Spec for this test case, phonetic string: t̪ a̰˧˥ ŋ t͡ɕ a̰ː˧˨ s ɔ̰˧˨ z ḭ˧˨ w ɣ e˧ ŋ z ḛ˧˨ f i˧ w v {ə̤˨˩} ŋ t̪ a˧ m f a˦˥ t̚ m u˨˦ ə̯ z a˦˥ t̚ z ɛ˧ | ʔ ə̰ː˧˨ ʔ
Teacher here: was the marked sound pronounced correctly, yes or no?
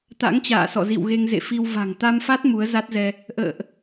no